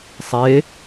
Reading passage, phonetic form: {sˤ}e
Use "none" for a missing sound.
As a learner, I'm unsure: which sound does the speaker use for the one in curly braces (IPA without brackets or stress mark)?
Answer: sˤ